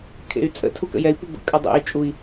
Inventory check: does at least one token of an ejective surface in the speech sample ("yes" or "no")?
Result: yes